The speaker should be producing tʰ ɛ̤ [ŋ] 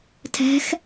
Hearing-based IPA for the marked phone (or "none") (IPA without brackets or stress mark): x